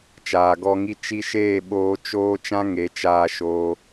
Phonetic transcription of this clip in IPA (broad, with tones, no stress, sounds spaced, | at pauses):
t͡ʃ aː˨ ɡ ɔ˧ ŋ i˦ t͡ʃ i˧ ʃ eː˦˨ ɓ oː˦ t͡ʃ oː˦ t͡ʃ ã˦ ŋ e˨˦ t͡ʃ aː˧ ʃ oː˧